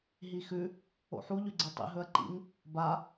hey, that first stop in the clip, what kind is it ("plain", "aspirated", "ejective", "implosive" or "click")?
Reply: click